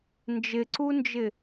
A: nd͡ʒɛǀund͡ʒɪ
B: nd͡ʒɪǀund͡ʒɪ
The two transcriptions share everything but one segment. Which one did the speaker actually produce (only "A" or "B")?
B